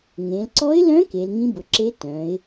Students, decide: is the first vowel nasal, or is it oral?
nasal